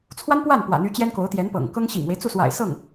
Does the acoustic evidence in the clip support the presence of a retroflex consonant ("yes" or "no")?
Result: no